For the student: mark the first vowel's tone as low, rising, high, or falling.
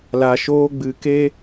low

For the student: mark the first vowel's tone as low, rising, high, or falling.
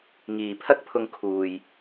low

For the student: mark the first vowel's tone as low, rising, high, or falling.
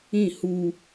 falling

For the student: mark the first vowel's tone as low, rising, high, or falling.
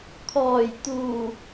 low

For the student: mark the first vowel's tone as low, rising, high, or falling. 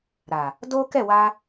low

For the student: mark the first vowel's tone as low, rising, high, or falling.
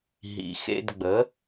low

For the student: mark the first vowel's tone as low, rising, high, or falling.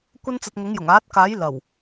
high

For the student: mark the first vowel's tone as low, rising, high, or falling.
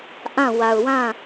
falling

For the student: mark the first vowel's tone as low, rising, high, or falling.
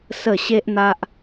low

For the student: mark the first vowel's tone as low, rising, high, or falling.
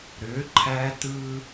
rising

